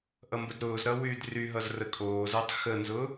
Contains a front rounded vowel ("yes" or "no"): yes